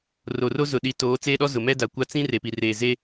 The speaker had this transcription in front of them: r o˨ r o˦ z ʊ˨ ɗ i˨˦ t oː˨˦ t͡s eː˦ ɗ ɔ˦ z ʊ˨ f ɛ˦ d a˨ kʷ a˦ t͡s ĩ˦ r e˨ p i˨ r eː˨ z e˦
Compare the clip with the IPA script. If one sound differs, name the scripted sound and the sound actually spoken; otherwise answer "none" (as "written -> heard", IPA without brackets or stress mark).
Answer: f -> m